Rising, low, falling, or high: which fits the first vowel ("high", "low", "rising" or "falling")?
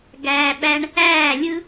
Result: low